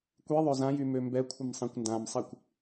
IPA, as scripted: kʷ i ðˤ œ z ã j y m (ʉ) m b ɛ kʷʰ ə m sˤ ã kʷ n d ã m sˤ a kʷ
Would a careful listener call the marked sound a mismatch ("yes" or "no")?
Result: yes